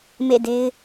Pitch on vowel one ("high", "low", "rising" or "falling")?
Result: falling